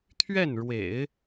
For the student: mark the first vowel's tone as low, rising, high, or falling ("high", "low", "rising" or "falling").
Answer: falling